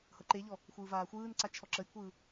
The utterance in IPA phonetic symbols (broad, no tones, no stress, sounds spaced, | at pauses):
h ɤ ǃ e ʎ ɔ | xʷ ɯː v aː xʷ ɯː n ǀ a t͡ʃʰ ɔ ǁ ə j kʷʰ ɯː